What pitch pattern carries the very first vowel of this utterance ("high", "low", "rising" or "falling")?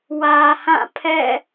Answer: low